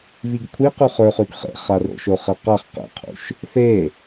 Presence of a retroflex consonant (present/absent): absent